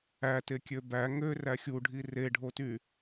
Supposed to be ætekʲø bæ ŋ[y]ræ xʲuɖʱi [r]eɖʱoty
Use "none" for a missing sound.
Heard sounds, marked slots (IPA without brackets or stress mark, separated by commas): ø, r